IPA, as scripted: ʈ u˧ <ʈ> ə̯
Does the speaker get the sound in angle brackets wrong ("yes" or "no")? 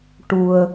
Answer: yes